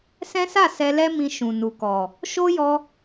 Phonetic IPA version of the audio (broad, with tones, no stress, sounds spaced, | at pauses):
s ɛ̃˦ s a˦˨ s ɛ˧ l ɛ˦ m ĩ˧ ʃ ũ˨ n u˨ k ɔ˨ | ʃ o˦ j ɔ˧